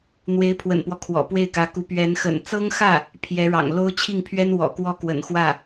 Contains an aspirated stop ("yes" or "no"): yes